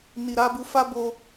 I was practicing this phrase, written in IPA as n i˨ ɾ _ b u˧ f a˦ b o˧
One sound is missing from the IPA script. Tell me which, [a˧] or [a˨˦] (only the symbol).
a˨˦